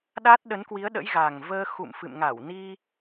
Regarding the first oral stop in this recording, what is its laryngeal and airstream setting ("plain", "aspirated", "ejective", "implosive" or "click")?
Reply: implosive